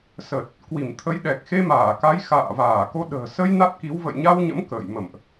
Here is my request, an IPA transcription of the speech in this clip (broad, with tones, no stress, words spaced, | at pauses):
sə˨˩t̚ | kwi˧˩mt̪ʰə˨˦jɗɛ˨˩k̚ xe˧maː˧˩ka˨˦j xa̰ː˧˨vaː˧˩ ko˧ ɗə̤ː˨˩ sə˧j na˦˥t̚ki˨˦w və̰˧˨jɲa˧wɲə̰˧˥m kə̰ː˧˨j mə̰˧˨mʔ